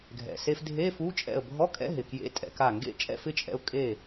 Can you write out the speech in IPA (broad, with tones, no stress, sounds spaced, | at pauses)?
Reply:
ɡʱ ɛ̰˩ s e˧ f dʱ e˧˥˧ f u˧˥˧ t͡ʃʼ ɛ̰˧˩ ə̯ bʱ ɔ˧˥˧ kʼ ɛ̰˧˥˧ ɦ ɪ˩ k j ḛ˧˥˧ tʼ ɛ̰˧ k a˧˩ ŋ ɡ ḛ˥˨ t͡ʃʼ ɛ̰˥˨ f ɪ˥˨ t͡ʃʼ ɛ̰˧ ʊ̯ kʼ e˥˨